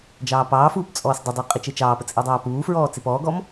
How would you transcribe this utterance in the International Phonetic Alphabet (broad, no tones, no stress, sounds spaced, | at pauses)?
d͡ʒ ɑː p ɑː f uː p t͡sʼ ɔː s dˤ ə dˤ e qʼ i t͡ʃ e t͡ʃ ɑː p ə t͡sʼ e dˤ ɑː p uː f ɹ ɔː t͡s e p ɔː ɡ ɔ m